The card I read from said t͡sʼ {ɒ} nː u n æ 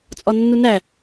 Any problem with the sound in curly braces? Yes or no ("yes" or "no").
no